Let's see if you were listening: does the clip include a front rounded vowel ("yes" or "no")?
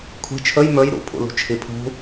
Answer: no